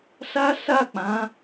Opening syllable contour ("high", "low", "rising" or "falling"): high